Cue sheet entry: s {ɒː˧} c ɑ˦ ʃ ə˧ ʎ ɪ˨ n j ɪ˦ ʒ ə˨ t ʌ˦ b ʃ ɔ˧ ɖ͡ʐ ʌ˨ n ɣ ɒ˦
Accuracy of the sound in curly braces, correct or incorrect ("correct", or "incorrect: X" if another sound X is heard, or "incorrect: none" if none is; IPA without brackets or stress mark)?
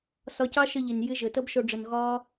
incorrect: ɒ˧